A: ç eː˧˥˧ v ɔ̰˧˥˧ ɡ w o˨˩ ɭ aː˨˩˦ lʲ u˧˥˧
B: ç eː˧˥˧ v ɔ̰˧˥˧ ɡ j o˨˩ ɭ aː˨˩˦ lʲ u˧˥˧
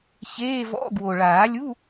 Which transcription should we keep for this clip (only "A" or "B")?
A